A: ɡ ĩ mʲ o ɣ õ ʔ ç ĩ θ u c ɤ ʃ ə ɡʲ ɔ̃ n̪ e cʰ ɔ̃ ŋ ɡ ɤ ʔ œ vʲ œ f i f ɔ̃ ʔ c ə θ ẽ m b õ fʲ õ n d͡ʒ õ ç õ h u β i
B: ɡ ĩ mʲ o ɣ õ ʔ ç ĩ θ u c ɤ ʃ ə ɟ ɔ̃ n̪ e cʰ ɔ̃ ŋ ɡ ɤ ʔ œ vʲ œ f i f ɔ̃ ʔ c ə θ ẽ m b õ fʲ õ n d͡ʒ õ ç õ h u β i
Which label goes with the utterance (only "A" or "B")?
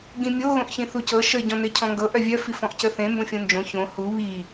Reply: B